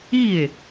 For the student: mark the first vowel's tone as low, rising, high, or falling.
falling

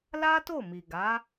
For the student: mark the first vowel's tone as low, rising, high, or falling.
high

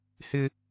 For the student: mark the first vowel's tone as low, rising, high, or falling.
high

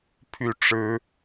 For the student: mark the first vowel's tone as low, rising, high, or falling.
falling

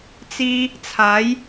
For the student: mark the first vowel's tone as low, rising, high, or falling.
high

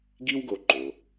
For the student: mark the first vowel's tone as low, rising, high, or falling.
high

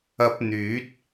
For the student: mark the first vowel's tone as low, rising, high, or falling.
rising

